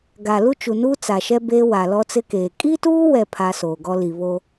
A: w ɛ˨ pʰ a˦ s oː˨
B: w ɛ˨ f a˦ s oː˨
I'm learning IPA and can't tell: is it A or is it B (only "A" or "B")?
A